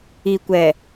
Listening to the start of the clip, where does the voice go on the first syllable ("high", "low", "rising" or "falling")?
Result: low